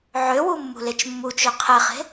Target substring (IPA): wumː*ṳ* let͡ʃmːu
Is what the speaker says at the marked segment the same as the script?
yes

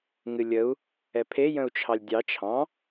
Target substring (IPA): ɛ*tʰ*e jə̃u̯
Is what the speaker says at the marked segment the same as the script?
no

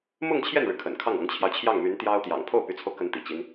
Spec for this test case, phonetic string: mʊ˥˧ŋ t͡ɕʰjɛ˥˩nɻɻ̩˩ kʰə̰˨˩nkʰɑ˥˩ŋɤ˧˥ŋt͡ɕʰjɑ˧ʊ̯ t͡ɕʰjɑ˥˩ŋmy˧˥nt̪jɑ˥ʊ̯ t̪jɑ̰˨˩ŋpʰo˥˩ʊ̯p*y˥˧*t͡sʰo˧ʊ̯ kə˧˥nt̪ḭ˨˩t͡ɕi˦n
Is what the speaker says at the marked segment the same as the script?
no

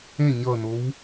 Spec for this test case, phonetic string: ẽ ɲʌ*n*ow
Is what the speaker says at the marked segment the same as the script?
yes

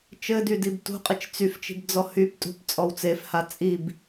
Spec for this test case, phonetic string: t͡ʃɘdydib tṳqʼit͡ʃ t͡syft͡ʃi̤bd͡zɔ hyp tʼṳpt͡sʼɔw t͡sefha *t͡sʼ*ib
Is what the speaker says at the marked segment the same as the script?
yes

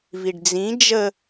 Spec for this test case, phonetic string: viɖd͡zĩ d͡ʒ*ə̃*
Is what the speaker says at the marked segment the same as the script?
no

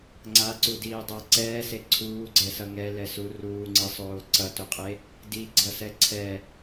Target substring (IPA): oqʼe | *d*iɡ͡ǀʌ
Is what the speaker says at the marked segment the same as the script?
yes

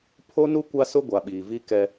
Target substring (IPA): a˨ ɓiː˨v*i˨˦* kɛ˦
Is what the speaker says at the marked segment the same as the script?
no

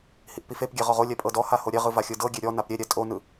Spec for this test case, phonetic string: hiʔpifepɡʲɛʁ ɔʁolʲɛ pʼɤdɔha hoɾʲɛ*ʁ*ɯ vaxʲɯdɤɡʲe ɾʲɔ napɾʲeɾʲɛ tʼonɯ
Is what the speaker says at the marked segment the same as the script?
yes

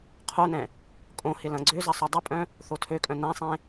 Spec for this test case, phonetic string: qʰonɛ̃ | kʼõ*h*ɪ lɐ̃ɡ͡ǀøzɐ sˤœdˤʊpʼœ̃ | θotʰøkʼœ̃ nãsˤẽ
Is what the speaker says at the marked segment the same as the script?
yes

